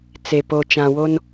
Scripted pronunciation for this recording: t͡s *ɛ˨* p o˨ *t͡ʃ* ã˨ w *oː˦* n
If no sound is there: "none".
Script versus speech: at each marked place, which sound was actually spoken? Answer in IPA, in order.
e˨, t͡ʃ, o˦

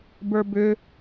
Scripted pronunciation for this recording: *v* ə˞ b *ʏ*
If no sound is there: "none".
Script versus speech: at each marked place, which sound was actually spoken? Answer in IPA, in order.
b, ʏ

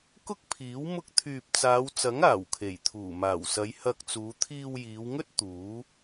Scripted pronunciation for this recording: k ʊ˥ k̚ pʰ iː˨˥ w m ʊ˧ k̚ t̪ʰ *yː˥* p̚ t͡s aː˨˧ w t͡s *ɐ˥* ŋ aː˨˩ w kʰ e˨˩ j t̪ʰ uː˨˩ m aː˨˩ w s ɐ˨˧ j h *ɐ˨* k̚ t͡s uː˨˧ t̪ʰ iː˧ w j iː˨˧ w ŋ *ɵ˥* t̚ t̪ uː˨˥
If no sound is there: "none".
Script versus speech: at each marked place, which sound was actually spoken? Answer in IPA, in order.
yː˨, ɐ˨˥, ɐ˧, ɵ˥

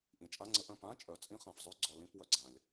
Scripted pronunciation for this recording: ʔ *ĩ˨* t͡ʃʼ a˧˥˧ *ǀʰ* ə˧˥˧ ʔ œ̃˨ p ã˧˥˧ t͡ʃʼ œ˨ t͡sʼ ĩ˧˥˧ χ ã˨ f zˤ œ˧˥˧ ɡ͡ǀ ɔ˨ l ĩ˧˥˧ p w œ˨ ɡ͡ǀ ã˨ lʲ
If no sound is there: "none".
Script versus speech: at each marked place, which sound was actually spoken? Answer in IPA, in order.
ĩ˨, ŋ͡ǀ

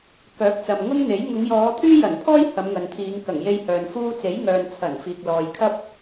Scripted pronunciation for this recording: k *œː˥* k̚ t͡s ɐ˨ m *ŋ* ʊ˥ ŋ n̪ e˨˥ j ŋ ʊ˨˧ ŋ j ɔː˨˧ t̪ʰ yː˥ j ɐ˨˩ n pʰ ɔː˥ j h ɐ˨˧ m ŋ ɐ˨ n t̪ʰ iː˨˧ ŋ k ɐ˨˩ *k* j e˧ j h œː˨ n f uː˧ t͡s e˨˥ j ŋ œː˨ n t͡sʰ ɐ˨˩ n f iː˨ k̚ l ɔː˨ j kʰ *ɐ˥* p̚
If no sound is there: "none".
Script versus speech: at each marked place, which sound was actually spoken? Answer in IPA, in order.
œː˨˥, ŋ, ŋ, ɐ˥

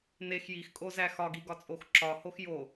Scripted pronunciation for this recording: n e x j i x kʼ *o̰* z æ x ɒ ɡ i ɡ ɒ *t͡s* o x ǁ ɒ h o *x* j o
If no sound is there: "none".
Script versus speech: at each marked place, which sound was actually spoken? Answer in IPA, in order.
o, t͡sʼ, x

